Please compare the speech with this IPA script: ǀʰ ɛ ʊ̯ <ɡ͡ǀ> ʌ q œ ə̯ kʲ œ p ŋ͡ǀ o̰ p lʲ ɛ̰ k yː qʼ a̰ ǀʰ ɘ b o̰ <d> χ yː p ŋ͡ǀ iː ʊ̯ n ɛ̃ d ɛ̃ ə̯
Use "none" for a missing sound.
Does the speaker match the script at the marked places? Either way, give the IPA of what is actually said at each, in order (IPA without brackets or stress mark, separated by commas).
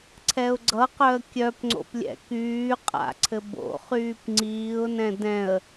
ɡ͡ǀ, none